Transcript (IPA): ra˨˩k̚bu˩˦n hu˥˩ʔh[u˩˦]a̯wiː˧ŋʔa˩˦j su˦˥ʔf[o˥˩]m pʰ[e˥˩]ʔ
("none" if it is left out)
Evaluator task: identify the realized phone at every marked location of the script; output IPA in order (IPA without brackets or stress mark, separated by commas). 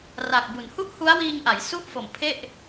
u˦˥, o˨˩, e˥˩